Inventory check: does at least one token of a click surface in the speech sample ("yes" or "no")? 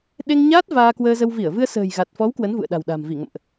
no